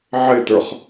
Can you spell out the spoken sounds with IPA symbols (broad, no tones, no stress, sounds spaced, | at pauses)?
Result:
ʕ ɪ t ə˞ χ